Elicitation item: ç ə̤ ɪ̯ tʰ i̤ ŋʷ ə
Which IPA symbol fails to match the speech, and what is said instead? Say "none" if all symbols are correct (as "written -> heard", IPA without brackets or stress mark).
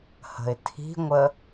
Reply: ç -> h